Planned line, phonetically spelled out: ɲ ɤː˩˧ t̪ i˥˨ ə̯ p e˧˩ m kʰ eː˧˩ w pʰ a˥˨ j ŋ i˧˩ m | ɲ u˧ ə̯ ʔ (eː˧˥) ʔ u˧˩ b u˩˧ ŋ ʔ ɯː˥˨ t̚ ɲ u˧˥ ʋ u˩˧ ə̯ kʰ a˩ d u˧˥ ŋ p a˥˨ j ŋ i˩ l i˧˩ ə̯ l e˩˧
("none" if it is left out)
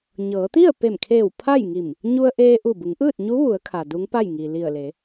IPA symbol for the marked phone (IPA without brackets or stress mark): eː˧